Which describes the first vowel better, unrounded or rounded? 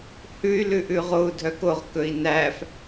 rounded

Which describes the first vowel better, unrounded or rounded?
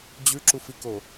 rounded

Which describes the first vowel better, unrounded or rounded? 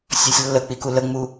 rounded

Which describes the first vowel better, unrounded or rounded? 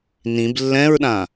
unrounded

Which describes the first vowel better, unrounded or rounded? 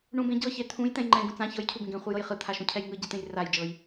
rounded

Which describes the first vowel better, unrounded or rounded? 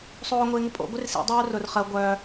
rounded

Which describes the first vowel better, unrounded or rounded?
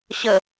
unrounded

